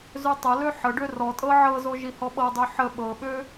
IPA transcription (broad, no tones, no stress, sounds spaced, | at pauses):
z ø tˤ ə l ø ħ ə ɖ ø r ɔ tʼ ɤ ʕ ɤ z o ʒ i h ɔ ɓ ɤ dˤ ø ħ ə ɓ ɤ ɓ ø